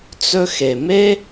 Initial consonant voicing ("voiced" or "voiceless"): voiceless